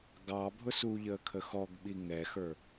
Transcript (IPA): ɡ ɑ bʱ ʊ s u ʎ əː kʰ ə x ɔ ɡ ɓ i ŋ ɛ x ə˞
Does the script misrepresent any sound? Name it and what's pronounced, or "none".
none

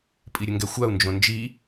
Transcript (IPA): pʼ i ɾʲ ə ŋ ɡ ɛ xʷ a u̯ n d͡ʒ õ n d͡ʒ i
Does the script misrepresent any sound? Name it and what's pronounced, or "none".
none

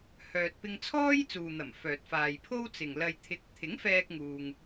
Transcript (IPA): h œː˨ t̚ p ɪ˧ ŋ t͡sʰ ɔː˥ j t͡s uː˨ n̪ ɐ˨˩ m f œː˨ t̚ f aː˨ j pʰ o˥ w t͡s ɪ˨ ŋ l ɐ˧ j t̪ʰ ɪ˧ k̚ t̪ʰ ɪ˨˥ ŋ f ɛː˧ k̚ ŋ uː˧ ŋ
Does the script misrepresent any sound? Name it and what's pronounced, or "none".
none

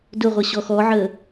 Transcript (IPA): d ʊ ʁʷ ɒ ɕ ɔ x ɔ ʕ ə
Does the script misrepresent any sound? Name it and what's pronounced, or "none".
ɒ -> ʌ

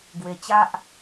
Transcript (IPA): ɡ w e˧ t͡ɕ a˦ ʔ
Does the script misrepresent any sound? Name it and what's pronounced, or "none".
none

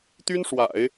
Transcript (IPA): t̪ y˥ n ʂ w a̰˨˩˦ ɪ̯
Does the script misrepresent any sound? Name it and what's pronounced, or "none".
none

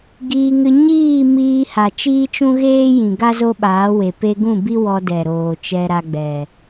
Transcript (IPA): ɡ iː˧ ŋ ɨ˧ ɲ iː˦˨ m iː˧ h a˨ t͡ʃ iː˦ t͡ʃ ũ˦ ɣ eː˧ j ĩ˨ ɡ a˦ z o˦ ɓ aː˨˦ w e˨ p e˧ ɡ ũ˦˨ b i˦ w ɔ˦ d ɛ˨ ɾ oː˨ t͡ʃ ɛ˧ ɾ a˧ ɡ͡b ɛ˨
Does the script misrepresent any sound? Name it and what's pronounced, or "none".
eː˧ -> eː˦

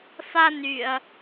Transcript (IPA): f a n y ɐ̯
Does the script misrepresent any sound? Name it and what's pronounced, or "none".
none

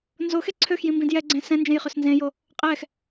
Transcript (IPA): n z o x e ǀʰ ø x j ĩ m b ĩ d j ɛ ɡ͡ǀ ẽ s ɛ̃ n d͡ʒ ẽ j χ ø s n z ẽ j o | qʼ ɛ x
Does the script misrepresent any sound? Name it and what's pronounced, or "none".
none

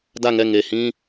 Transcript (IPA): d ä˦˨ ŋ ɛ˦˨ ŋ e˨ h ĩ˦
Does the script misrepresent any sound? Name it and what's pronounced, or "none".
none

